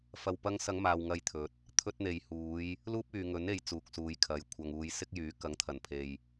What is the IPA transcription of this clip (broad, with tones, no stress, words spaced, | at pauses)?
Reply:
fɐ˨wpɐ˧ŋsɐ˨˧ŋ maː˨wŋɐ˧jt̪ʰɵ˨˥t̚ | t̪ʰɵ˧t̚n̪e˨jhuː˨˧j | luː˥p̚yː˨ŋɵ˨˥ne˨˧j t͡suː˨k̚suː˨j kʰɐ˨˧jkʷʰɐ˧ŋuː˧j sɪ˥k̚jyː˨˥ kɐ˨˥ŋt̪ʰɐ˨˩npʰe˨j